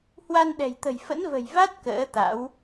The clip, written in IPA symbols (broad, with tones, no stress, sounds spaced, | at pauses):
h w a˧ n ɗ ɛ̤˨˩ j t̪ ə̤˨˩ j f ə̰˧˥ n v ə̤˨˩ j v a˦˥ t̚ k ə̰ː˧˥ t̪ a̰˧˥ w